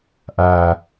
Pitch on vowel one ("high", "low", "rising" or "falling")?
low